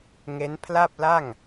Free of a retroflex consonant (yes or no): yes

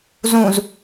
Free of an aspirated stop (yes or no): yes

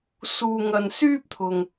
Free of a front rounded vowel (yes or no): no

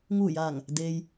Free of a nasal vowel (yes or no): yes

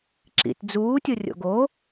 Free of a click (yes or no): no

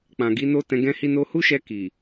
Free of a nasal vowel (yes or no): no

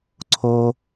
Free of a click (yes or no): no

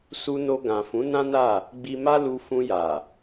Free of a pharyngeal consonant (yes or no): yes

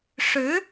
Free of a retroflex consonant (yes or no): no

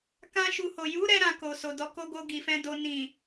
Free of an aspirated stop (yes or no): yes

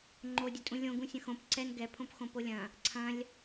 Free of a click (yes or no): no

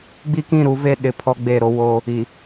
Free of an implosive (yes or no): no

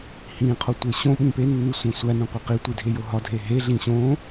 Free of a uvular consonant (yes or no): no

